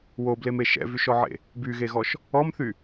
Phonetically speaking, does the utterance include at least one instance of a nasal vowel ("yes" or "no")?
no